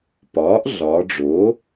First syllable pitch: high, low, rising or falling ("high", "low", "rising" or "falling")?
rising